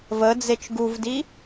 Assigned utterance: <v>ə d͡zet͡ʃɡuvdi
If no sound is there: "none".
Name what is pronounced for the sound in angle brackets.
v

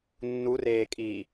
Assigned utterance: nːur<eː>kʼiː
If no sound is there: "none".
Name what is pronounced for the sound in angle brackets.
eː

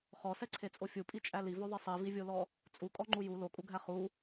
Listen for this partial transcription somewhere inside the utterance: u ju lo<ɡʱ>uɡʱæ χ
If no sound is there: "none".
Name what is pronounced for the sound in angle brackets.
kʼ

